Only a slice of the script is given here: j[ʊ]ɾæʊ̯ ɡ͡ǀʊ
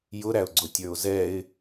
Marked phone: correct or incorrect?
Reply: correct